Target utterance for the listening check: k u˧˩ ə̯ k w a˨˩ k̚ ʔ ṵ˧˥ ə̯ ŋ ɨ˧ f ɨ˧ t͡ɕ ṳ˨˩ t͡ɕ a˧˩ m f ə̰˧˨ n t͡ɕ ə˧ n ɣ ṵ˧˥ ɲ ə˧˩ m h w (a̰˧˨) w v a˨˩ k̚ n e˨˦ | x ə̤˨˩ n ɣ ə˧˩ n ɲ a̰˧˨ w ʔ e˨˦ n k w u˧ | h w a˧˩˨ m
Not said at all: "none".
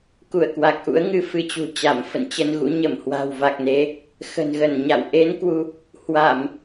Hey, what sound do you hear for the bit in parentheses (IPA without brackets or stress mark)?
a̤˨˩